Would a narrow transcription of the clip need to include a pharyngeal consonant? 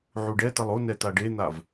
yes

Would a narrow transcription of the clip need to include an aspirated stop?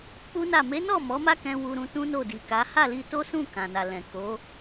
no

